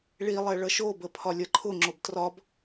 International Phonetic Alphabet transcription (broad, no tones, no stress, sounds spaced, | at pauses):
ɭ i lˠ ɛ ɭ ʌ ʃ o b ə pʰ ɒ lʲ ʌ ǃʰ ʊ ŋ͡ǁ o b t r ɒ b